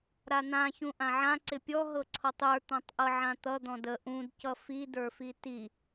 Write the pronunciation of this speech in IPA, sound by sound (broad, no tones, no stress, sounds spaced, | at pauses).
ɾ a n̪ ã ç ũ ʔ ã ʕ ã ǀ ɪ pʲ ɔ ɦ ɤ ǀʰ ɔ tˤ ə˞ t̪ ɔ̃ tˤ ʔ ɤ ʕ ã t̪ ʌ d̪ ɔ̃ d ə ʔ ũ d c ʌ f i d ə˞ f i t i